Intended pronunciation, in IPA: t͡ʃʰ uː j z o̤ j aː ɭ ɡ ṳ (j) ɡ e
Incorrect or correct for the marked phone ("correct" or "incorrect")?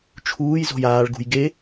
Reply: correct